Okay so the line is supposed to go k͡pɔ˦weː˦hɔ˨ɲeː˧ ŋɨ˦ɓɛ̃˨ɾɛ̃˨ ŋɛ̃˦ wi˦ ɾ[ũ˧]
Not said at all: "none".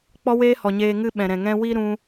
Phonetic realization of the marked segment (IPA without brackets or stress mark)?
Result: ũ˧